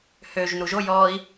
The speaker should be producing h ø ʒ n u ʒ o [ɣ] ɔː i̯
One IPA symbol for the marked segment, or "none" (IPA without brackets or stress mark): j